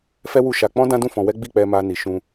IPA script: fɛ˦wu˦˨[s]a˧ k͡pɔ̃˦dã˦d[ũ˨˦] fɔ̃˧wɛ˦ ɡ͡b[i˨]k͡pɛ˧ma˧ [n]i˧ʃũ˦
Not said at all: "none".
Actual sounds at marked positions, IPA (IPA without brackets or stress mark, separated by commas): ʃ, ũ˦˨, i˦˨, n